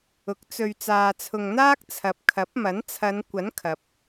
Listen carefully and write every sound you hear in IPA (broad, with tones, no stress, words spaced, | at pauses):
ʊ˨˥k̚t͡sɵ˧ɥ t͡saː˨t͡sʰʊ˨ŋn̪aː˥k̚ t͡sʰɐ˨p̚ kʰɐ˨˥p̚ mɐ˨˥n t͡sʰɐ˨˧n kʷɐ˨˥n kʰɐ˨p̚